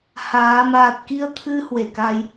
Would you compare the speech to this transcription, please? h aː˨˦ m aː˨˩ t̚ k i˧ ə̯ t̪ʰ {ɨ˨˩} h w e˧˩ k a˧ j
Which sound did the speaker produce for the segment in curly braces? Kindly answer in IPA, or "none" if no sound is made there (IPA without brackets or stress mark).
ɨ˧